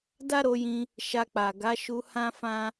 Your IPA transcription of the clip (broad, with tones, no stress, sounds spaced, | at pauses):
d a˦ ɾ o˧ j ĩ˧ | ʃ a˧ k͡p a˨ ɡ a˨˦ ʃ u˧ h ã˦ f ã˦